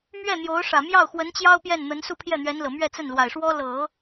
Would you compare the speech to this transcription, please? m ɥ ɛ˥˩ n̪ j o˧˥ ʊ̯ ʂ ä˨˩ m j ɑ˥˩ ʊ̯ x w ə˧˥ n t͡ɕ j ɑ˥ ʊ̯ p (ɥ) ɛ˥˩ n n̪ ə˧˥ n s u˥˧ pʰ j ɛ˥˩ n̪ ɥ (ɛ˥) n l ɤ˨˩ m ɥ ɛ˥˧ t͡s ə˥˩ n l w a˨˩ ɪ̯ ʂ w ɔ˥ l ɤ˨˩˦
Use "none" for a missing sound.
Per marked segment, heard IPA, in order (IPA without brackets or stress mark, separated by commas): j, ɛ˧˥